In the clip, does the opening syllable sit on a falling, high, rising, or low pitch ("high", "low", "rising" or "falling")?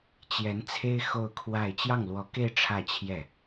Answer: rising